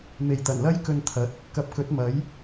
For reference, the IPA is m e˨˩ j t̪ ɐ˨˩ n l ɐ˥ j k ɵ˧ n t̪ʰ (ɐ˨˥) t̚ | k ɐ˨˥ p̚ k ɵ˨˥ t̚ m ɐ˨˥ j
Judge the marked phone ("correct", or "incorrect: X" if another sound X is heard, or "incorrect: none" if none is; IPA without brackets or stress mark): correct